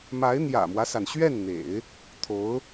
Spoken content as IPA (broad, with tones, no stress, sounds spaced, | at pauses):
m a˧˥ ɪ̯ n̪ j ä̰˨˩ m w ä˦ s a˩ n ɕ ɥ ɛ˥˩ n n̪ ḛ˨˩˦ ɪ̯ | t̪ʰ o˧˥ ʊ̯